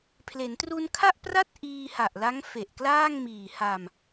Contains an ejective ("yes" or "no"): no